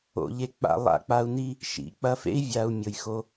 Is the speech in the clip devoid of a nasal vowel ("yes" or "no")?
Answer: yes